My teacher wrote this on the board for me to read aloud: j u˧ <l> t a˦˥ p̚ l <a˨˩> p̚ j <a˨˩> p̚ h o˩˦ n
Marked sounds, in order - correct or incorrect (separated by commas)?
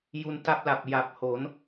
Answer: incorrect, correct, correct